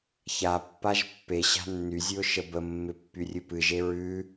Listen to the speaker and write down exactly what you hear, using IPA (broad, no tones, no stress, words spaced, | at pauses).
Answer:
çapːaʒ pːe ɕa̤nːyzʲʉʊ̯ ʃəbəmːɪ pːyrʲɨpɨʒe ɹʉ